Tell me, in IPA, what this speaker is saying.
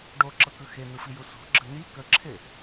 ɖ o ǁ ɤ k ɯ x e n ɯ f i j u s o̤ ɡ͡ǁ ə n̪ i k ə ǁʰ e

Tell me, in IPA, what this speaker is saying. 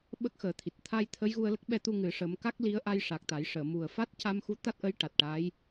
ɓ ə˦˥ k̚ x əː˨˩˦ t̪ʰ i˨˩ t̚ t̪ʰ a˧ j t̪ʰ ə˧˥ j ɣ u˧ ə̯ l ə˦˥ k̚ ɓ ɛ˧ t̪ u˧ ŋ ɨ˨˩˦ ʂ ə˧˥ m k a˦˥ k̚ l i˧˥ ə̯ ʔ a˧ j ʂ a˨˩ k̚ t̪ a˨˩˦ j ʂ əː˨˩˨ m u˨˩ ə̯ f a˦˥ t̚ c a˧ m x u˧˥ t̪ a˦˥ t̚ ʔ ə˧˥ j ʈ a˨˩ t̚ ʈ a˧˥ j

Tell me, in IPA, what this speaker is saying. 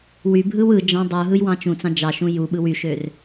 w y bʱ ɯ w ɯ d͡ʒ ɑ̃ dˤ u ɦ ɯ j w ɑ̃ t͡ʃ ũ t͡s ɑ̃ d͡ʒ ɑ ʃ ũ j u ɓ ɯ w y ʃ ø r

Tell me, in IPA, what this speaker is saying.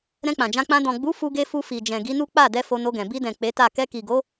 ɾ ɛ̃˧ k͡p ã˨ d͡ʒ ã˧ k͡p ã˧ d ɔ̃˨ ɡ͡b u˨˦ f u˧ ɡ e˧ f u˧ f i˨ d͡ʒ ɛ̃˨ ɡ i˨˦ n u˦ k͡p a˦˨ d ɛ˧ f o˧ n o˧ ɡ ɛ̃˨ b i˧ d ɛ̃˨ k͡p e˨˦ t a˦˨ k ɛ˧ k i˨ ɡ o˨˦

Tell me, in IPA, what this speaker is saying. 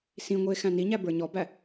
s ĩ ŋʷ i e̯ x æ̃ n i ɲ æ b ə˞ ɲ ɔ b æ

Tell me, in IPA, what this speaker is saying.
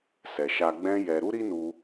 s ɛ˨ ʃ a˧ ɡ͡b ɛ̃˦ j ɛ˧ ɾ u˦ ɾ i˦ n u˧

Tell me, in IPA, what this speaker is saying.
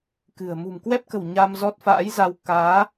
k ɨ̤˨˩ ə̯ m ṳ˨˩ m k w ɛ˦˥ p̚ k ə̤˨˩ w ɲ a˧ m z ɔ˦˥ t̚ f a̰ː˧˥ j z a˧ w k aː˨˦

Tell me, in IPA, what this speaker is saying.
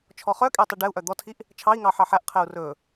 t͡ʃʰ ɔ χ œ kʼ e tˤ i ɖ ɛ u̯ ʔ œ d̪ ɔ tʰ i ʔ | t͡ʃʰ ɑ i̯ ŋ ɑ ħ ɑ ħ æ ʔ qʰ ɛ u̯ r ɵ

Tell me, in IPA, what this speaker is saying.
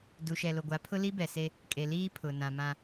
d u˨ ʃ ɛ˨ l o˨ ɡʷ a˨˦ pʰ ʊ˦ l i˦ b ɛ˨ s e˦ | kʼ e˨ l iː˦ pʰ ʊ˨ n ã˨ m ã˦

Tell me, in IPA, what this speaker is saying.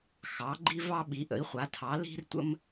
x ɑ˩˥ ɡ͡ǃ i˥ v ɑ˥ ɓ i˩˥ ʔ ə̰˩˥ i̯ χʷ a˩˥ tʰ ɑ˩˥ l i̤˥ r tʷ ə̰˥ m

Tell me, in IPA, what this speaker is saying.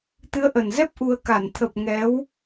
t̪ ɨ˨˦ ə̯ ʔ ə˨˩ n z ɛ˦˥ p̚ ʔ u˧ ə̯ k a˧˩ n t̪ʰ ə˨˩ p̚ ŋ ɛ˨˦ w

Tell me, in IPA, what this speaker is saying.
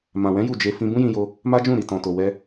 m ã˨ w ɛ̃˨˦ j u˦˨ d͡ʒ e˧ f ĩ˧ b ũ˦ j ĩ˧ j o˧ | m a˦ d͡ʒ ũ˦˨ ɾ i˨ t ɔ̃˨ t o˨ w ɛ˧

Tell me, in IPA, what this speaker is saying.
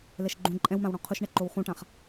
l ɛ ʃ ɡ͡ǃ ũ ǃʼ ɛ̃ w m ã w ɽ ɔ̃ qʰ ʊ ʃ ɳ ɛ ǃ o w χ ũ ʈ ã χ

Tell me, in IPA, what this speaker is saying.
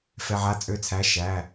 f ɛ˧˥˧ ʕ a˥˨ t͡sʼ ø˥˨ t͡sʰ æ˧˥˧ ʃ æ˧˥˧

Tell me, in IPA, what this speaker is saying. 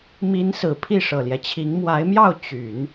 m i˧˥ n s ɹ̩˨˩ pʰ i˥˩ ʂ ɤ˨˩ l j ɛ˦ t͡ɕʰ i˧˥ ŋ m w a˧˥ ɪ̯ m j ɑ˥˩ ʊ̯ t͡ɕ y˨˩˦ n

